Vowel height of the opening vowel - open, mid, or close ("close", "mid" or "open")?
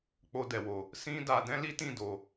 mid